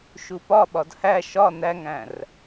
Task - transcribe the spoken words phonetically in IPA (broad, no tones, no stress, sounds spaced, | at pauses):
ʃ u p ɒ ɓ ɒ d h æ ʃ ɒ n æ ŋ æ̃ r